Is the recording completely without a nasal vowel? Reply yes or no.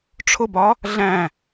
no